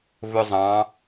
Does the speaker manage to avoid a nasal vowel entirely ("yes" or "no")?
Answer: no